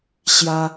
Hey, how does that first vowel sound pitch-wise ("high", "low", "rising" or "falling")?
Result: high